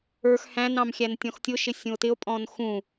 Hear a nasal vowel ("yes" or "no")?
yes